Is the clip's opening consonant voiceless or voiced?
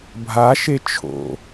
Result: voiced